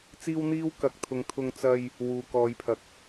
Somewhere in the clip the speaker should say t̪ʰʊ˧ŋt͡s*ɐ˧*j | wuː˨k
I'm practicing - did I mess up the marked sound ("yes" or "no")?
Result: no